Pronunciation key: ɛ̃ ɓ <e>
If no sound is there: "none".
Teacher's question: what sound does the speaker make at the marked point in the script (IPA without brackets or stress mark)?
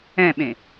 ẽ